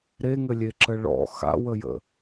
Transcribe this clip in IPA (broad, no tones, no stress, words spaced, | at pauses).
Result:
ɾeŋɘlʲeǁə ɭɔ̰ xa̰wəjə̰